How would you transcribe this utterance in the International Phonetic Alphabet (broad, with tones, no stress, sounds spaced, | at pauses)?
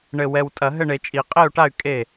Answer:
ɳ ɘ˨˩ w ɛ˨˩ w tʼ ɐ˨˩˦ ɦ ɘ˥˩ ɳ e˨˩˦ t͡ʃʼ i˨˩˦ qʼ e˥˩ u̯ ʈ a˥˩ y̯ kʼ e˥˩